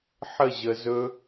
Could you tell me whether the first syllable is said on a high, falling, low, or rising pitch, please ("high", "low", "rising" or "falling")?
falling